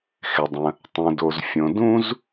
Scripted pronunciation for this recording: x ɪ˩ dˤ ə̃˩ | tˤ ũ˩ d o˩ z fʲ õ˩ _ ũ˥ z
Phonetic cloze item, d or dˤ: d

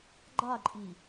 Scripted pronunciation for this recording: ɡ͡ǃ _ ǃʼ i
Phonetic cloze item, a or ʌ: a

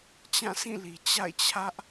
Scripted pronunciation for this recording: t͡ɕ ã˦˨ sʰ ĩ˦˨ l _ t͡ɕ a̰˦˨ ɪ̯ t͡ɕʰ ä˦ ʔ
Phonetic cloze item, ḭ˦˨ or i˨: i˨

